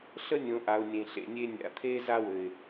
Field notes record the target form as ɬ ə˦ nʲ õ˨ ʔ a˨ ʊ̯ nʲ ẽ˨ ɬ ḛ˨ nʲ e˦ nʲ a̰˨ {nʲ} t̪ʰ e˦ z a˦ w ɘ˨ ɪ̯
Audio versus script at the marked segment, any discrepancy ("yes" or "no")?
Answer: yes